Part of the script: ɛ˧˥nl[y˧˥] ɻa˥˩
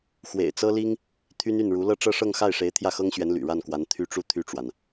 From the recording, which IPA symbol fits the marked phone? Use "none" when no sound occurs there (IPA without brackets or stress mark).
y̰˨˩